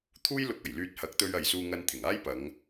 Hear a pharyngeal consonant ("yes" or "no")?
no